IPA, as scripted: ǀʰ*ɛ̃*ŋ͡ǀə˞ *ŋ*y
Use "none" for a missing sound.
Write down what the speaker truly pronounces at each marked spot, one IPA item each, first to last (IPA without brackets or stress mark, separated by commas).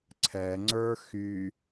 ɛ, x